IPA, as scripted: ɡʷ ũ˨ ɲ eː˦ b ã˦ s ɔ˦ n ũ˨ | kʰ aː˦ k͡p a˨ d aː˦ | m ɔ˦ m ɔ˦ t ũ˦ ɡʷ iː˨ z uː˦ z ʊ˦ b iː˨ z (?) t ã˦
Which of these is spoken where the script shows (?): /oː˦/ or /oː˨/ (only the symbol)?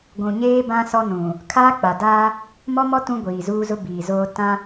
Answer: oː˦